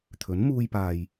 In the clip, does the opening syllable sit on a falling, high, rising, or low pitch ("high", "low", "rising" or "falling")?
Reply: rising